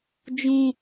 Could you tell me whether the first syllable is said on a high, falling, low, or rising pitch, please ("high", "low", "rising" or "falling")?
low